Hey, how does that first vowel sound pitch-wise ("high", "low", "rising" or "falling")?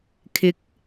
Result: rising